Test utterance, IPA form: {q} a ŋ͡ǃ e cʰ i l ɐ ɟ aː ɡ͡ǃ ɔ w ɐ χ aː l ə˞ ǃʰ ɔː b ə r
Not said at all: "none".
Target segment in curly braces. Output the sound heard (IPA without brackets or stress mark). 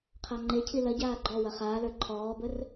qʰ